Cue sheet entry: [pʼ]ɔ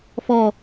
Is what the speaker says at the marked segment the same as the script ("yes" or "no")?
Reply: no